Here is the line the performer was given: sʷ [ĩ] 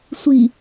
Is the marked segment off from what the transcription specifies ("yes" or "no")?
yes